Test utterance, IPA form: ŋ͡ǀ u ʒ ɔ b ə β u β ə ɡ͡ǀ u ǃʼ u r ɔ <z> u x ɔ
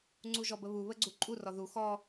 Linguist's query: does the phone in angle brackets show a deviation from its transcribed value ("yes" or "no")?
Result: yes